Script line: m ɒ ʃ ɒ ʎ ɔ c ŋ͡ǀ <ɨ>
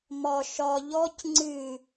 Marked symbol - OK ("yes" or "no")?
yes